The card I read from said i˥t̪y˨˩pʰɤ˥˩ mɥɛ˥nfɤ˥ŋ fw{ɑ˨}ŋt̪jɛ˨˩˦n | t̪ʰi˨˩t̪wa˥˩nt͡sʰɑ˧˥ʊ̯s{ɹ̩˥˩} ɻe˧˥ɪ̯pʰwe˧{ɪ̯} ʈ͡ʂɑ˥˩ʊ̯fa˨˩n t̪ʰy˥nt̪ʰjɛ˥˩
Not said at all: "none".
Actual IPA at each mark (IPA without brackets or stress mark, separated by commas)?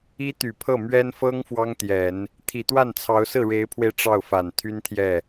ɑ˥, ɹ̩˥˩, ɪ̯